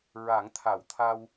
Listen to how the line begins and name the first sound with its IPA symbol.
ɹ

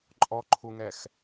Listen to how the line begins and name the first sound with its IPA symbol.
ǃʼ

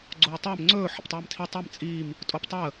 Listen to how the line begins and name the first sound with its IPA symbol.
ɡ͡ǀ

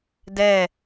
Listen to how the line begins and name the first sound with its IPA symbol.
d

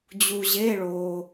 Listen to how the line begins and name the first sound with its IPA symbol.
d͡ʑ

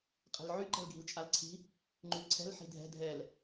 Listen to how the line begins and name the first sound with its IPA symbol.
qʼ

